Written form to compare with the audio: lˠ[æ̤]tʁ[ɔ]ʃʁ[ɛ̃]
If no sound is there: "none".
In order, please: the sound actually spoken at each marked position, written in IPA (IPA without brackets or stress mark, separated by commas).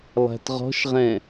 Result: æ̤, ɔ̤, ɛ̃